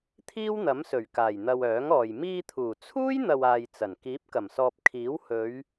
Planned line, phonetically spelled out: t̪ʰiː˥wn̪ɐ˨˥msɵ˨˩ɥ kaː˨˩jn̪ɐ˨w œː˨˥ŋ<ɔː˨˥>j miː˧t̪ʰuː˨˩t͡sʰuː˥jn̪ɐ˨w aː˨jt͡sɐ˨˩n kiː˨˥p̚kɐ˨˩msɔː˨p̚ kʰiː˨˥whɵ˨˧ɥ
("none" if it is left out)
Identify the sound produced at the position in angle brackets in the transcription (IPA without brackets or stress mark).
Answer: ɔː˨